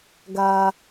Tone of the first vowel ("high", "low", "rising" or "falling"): low